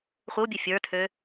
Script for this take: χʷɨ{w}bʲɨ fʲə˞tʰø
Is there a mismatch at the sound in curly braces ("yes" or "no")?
no